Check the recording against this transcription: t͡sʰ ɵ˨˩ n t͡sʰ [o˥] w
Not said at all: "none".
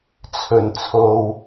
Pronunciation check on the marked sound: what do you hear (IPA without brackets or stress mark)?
o˨